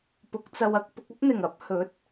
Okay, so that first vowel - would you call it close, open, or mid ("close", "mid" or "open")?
close